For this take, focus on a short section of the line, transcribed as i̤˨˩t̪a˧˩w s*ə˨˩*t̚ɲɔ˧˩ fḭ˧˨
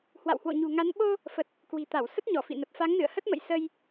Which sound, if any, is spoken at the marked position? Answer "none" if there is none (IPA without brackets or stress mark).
ə˦˥